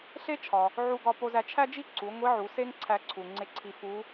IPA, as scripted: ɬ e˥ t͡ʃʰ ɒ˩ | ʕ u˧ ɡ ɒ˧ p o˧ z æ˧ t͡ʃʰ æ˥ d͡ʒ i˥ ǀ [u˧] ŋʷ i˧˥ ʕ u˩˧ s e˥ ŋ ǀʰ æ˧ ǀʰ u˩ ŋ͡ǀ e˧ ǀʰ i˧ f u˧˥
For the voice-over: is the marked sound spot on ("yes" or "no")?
no